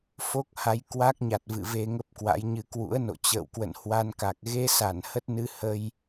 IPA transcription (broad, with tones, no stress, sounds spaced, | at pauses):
f o˦˥ k̚ h a˨˦ j k w a˦˥ k̚ ɲ a˨˩ t̚ v ɨ̰˧˨ v e˧ ŋ ə˦˥ p̚ k w a̰˧˥ j ɲ ɨ˧ k w ṵ˧˥ ə̯ n o̰˧˨ t͡ɕ ə̰ː˧˨ w k w ə̰˧˨ n h w a˧ n k a˨˩ k̚ ɣ e˧ s a˧˩ n h ə˦˥ t̚ n ɨ˧ h ə˧ j